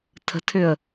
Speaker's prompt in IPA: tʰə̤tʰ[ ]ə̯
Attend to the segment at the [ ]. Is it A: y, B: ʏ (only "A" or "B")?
B